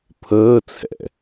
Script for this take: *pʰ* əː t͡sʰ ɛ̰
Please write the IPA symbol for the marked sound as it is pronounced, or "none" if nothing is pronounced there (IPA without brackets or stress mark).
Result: pʰ